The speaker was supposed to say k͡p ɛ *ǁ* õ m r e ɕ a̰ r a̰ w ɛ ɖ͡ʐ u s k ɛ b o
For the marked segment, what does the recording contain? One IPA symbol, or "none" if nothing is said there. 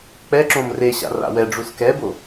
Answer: ǁ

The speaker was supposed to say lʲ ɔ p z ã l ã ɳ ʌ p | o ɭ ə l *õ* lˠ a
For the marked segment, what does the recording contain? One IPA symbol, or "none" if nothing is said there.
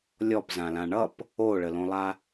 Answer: õ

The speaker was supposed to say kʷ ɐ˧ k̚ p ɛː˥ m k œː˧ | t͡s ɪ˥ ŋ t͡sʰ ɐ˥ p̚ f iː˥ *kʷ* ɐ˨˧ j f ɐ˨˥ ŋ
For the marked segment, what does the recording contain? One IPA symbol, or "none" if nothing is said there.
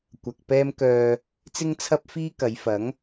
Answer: k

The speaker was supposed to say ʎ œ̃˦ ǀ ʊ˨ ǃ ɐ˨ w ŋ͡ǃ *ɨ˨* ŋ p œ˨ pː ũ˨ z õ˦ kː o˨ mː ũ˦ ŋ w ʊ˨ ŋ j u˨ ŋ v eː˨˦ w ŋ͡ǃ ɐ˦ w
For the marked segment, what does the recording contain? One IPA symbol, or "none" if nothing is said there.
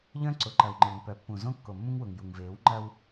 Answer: e˨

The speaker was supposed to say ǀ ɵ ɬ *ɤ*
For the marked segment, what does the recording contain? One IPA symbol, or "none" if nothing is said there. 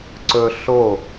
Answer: o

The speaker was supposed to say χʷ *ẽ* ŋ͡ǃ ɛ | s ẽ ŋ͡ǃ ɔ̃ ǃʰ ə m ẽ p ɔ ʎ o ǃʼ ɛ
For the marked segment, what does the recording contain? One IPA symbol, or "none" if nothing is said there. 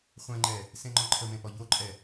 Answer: ɛ̃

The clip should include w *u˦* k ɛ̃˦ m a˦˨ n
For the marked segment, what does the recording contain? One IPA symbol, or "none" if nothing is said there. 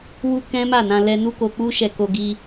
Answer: u˦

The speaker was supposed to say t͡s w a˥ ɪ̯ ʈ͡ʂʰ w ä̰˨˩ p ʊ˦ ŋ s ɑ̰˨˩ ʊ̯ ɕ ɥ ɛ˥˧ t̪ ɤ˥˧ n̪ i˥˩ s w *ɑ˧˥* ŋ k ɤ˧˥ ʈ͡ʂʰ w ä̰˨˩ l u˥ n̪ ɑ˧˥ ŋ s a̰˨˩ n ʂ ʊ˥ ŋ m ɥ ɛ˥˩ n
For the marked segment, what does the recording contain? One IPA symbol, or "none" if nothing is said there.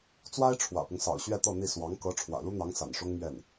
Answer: ɑ˧˥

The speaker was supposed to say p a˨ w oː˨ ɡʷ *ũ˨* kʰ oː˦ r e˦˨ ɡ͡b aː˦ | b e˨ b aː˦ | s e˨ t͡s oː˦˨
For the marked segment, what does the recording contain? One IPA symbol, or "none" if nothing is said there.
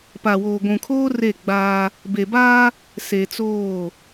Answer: ũ˨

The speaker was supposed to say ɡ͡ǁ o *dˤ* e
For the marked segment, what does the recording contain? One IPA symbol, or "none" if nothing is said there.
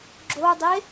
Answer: dˤ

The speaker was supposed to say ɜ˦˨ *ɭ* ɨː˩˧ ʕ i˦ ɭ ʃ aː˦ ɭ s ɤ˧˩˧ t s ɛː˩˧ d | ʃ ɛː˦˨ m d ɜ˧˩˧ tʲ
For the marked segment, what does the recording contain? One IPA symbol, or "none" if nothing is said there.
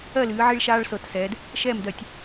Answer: l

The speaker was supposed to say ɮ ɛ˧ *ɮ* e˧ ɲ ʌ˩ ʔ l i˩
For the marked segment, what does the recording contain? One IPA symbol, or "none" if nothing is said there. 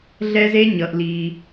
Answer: z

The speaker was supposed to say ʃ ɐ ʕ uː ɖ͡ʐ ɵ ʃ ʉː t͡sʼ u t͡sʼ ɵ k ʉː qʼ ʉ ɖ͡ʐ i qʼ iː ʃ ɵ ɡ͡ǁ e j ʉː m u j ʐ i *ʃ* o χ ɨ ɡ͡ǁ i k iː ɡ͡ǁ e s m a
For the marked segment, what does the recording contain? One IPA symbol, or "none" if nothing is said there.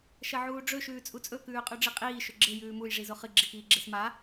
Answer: z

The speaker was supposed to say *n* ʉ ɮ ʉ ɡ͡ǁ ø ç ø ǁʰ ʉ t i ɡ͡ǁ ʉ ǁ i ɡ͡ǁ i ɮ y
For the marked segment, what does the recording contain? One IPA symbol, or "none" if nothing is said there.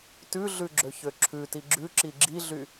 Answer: t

